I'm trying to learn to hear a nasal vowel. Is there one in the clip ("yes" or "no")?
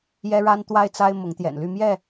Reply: no